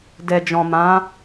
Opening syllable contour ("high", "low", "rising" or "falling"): low